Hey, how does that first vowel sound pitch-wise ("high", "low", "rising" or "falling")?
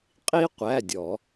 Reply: high